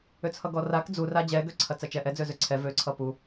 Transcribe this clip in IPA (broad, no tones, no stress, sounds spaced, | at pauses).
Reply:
ø t͡sʰ ʌ ɡ ɔ r a k d͡z u r a d͡ʑ ɛ ɡ ø ǀʰ ɐ t͡s ɐ t͡ʃ ɛ ʔ ɛ d͡z ø z ø ǀʰ ɛ v ø ǀʰ ʌ p u